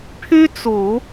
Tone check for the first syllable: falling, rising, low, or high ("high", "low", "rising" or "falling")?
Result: high